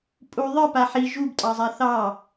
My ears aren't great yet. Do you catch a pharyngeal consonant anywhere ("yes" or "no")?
yes